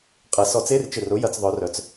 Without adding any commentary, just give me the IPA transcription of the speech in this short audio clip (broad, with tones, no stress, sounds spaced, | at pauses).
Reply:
qʼ ɐ˨˩˦ s ɔ˨˩˦ t͡s e˧˥˧ r t͡ʃ ɪ˧˩ r ʊ˨˥ j ɐ˨˥ t͡s ðˤ œ˨˥ r œ˨˥ t͡s